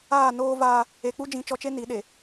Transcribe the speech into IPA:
aː˦˨ n oː˦ v aː˦ | e˨ k͡p u˦ d͡ʒ ĩ˨˦ t͡ʃ ɔ˨ t͡ʃ e˦ n i˨˦ ɗ e˨

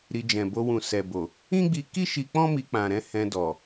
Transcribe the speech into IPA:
ɾ i˧ d͡ʒ ɛ̃˨ b o˧ w ũ˨ s ɛ˨ b o˨ | ĩ˦ ɡ͡b i˧ k i˦ ʃ i˧ k͡p ɔ̃˦ m i˧ k͡p ã˨ ɾ ɛ̃˨˦ h ɛ̃˧ d ɔ˨

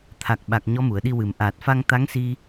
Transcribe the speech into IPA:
t̪ʰ a˨˩ k̚ ɓ a˨˩ k̚ ɲ ɔ˧˥ m u˨˩˨ ə̯ ɗ i˧ w ɨ˨˩˨ m ʔ aː˨˩ t̚ f a˧ ŋ t̪ a˧˥ ŋ s i˧

